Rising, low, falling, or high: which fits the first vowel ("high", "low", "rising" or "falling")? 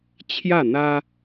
falling